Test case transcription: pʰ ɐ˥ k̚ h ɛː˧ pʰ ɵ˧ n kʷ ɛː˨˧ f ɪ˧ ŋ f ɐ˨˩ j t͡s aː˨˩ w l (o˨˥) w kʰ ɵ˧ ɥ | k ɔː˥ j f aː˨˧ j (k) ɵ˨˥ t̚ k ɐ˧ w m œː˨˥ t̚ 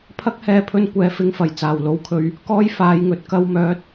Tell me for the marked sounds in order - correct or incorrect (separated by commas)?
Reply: correct, incorrect